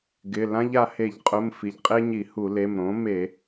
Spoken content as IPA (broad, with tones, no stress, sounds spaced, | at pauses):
ɡ ɪ˩˧˩ l ã˥ ʎ a˧ h e˧˩˧ ʎ qʼ ʊ˩˧˩ m f i˩ ʎ qʼ e˥ ɲ i˧˩˧ h u˧˩˧ l e˩˧˩ m ɾ õ˩˥ m e˧˩˧